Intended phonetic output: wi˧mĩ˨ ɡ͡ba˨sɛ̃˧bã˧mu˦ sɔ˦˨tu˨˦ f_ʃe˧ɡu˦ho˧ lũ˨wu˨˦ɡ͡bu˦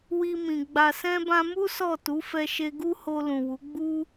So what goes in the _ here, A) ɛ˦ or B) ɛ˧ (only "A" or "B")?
B